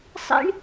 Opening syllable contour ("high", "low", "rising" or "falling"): high